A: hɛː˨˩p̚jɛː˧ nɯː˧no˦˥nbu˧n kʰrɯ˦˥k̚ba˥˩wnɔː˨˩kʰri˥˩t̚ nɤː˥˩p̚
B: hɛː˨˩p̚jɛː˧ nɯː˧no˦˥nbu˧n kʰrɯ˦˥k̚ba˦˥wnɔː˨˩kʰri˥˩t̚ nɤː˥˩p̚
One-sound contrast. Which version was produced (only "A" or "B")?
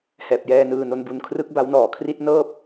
B